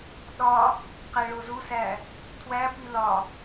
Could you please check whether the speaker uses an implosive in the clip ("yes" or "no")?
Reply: yes